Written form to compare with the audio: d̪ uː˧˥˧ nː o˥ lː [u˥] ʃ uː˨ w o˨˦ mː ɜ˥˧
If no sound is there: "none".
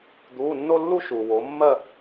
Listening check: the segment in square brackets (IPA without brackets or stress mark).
u˥